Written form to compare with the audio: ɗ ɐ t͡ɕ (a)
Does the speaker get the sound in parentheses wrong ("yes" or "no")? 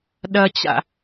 yes